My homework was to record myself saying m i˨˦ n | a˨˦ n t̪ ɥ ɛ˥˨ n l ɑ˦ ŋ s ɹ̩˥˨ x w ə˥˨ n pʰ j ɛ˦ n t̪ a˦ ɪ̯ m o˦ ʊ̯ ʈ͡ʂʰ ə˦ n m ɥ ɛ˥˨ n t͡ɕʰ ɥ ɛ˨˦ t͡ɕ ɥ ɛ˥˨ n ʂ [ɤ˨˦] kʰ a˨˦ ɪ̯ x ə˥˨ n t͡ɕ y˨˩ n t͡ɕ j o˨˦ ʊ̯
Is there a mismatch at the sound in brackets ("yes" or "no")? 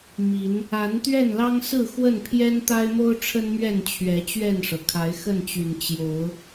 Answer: yes